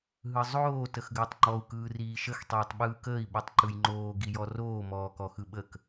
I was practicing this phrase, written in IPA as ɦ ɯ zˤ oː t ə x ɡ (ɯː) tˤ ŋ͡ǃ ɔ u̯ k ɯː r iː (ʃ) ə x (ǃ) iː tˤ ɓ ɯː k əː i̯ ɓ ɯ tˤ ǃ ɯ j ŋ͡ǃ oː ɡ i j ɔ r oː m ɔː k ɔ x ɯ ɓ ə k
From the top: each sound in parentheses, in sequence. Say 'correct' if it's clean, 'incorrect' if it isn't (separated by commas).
incorrect, correct, incorrect